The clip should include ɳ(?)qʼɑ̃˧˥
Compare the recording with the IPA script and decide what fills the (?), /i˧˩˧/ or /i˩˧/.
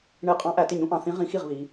i˧˩˧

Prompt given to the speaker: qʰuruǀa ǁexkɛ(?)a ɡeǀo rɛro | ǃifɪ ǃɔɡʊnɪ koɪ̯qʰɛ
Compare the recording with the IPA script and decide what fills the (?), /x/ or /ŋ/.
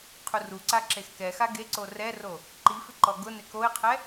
x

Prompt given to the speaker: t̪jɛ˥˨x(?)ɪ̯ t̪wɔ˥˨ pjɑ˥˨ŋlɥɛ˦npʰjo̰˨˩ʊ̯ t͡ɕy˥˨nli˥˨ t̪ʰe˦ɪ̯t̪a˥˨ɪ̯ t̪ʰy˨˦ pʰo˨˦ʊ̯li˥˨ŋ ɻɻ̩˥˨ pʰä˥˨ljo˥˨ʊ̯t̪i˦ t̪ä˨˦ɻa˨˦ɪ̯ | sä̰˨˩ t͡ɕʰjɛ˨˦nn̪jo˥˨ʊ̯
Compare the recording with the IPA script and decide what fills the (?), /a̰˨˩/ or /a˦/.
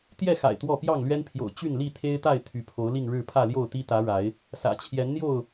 a̰˨˩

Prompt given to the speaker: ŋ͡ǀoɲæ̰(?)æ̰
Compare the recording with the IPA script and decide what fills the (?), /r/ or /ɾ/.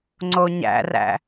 r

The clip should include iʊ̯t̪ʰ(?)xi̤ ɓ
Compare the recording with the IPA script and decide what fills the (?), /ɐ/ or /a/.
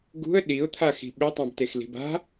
a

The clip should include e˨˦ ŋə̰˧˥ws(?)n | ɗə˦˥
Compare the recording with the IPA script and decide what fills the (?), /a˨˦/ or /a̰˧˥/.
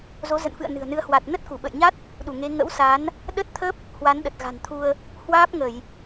a˨˦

